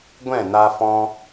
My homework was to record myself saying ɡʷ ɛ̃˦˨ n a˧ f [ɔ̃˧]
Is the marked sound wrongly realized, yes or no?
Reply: no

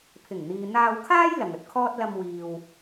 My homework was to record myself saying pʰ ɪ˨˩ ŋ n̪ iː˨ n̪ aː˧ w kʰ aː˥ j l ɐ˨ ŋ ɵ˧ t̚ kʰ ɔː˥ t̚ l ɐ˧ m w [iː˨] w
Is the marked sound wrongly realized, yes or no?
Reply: no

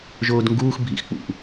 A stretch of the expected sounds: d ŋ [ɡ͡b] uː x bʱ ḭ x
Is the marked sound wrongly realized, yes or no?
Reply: yes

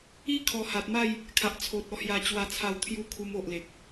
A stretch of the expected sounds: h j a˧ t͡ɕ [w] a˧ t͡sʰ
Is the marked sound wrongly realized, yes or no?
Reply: no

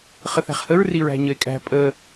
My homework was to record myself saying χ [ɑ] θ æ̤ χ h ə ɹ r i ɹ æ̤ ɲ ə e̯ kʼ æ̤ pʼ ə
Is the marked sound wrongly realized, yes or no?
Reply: yes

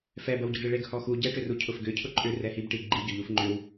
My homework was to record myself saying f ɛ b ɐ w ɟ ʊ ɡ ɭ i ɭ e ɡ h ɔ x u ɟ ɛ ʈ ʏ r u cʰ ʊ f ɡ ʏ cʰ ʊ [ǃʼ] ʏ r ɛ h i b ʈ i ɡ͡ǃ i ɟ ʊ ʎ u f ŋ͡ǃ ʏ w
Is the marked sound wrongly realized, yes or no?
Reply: no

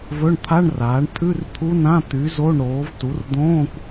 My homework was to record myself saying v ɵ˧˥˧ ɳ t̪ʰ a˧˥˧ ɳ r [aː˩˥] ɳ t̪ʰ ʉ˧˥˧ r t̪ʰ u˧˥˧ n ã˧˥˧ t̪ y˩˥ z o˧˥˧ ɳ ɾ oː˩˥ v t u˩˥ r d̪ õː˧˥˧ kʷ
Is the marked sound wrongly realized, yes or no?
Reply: no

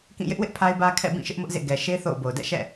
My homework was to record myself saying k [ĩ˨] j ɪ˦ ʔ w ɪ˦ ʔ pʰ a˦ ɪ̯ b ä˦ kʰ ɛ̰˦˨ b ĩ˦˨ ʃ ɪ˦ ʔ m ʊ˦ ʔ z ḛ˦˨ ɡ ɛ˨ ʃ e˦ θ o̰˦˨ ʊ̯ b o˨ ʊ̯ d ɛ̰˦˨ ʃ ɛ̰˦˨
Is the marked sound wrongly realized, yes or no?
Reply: yes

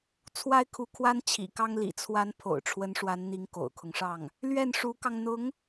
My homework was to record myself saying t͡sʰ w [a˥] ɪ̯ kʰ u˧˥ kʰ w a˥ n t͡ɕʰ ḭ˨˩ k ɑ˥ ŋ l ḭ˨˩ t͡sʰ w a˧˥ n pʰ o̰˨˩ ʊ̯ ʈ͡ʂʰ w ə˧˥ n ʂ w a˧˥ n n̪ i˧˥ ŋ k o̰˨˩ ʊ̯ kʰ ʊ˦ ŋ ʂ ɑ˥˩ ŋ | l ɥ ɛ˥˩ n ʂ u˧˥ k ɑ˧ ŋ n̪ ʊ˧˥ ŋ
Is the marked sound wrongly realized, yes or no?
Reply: no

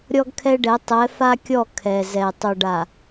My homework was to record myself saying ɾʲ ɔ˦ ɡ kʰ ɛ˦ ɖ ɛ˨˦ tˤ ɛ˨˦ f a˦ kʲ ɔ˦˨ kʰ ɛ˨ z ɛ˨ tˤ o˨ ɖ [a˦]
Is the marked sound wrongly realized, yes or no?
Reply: yes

